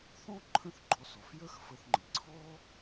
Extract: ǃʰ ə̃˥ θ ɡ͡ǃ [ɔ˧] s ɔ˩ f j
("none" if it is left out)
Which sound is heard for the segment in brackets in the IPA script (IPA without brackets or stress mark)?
ɔ˧